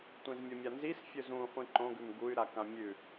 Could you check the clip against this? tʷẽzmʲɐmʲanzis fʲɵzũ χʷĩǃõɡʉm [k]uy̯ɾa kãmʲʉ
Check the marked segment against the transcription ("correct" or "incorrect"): incorrect